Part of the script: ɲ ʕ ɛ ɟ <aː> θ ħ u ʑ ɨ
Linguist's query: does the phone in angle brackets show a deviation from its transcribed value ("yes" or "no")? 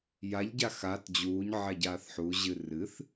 no